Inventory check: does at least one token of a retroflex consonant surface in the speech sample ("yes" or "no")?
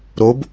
no